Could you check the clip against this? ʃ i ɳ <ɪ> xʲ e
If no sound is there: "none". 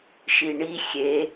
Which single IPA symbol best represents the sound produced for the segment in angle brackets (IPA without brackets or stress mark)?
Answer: i